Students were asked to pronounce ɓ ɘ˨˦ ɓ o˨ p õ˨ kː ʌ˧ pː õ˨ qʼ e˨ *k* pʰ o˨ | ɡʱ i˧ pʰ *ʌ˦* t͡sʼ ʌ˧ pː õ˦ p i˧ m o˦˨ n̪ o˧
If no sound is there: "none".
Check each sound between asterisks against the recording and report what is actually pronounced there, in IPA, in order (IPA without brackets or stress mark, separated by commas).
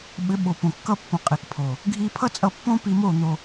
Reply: k, ʌ˦